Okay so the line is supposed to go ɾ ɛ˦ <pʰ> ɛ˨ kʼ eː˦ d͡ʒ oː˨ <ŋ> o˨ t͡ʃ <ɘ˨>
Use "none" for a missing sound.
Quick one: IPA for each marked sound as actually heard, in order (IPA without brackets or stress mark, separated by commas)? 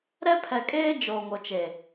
pʰ, ŋ, e˨